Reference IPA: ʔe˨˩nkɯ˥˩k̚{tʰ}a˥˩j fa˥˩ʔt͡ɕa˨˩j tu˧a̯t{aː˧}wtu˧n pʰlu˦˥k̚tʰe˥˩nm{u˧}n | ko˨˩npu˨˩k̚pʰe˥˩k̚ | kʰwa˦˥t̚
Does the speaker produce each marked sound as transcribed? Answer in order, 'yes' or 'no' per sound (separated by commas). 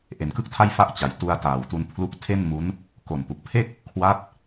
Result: yes, no, no